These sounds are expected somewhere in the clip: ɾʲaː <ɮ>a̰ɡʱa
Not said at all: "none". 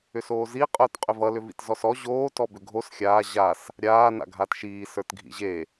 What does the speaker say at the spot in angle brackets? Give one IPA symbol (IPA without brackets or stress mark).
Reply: n